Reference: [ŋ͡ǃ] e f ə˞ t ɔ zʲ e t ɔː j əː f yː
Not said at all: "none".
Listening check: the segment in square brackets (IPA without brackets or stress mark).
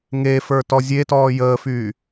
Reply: ŋ